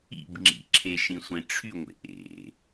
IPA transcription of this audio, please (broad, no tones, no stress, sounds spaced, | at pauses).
ḭ b ŋ͡ǁ ḭ ǁʰ e ʃ ĩ sʷ ẽ ʈ͡ʂʰ y ŋʷ ḛ ʔ ḛ